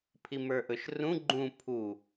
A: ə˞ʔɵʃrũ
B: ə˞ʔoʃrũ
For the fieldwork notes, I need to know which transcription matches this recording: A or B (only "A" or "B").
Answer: A